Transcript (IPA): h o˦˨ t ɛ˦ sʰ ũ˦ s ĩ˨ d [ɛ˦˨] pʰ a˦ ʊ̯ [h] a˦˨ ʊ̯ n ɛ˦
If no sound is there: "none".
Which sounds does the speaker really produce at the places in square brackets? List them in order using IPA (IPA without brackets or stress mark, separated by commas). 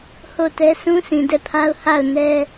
ɛ˦˨, h